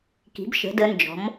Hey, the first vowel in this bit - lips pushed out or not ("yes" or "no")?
no